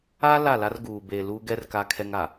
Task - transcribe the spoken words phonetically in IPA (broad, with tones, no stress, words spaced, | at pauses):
a˦ la˦˨la˦rɡuː˨ beː˨lu˦ɡɛ˦r ka˦kʰɛ˦ŋa˨